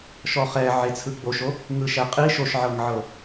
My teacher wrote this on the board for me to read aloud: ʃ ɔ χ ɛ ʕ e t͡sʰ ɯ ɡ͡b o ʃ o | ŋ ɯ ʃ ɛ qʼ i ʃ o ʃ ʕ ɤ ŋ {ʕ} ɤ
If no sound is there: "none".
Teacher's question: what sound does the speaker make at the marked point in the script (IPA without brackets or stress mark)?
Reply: ʕ